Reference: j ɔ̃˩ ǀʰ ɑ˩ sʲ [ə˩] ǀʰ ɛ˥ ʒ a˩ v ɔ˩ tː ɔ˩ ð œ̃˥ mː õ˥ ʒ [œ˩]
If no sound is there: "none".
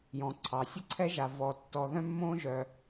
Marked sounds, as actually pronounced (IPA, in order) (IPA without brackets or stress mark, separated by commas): ə˥, œ˩